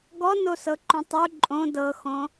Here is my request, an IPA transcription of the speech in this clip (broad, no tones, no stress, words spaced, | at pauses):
ɡɔnosɤǃũ tˤu ǃʼõ dɤxõ